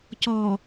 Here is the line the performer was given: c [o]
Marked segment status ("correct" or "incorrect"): incorrect